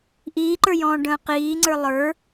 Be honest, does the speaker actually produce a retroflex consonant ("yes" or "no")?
yes